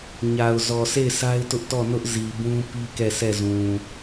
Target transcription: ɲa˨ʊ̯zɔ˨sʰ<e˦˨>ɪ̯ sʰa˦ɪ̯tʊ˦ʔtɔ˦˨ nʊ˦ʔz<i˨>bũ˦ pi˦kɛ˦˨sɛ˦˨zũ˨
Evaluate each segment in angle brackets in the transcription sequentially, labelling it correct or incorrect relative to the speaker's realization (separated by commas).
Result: correct, correct